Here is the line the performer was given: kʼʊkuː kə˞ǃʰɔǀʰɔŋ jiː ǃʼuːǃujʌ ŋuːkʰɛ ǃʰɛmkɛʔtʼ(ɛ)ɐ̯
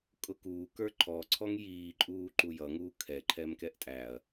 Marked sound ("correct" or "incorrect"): incorrect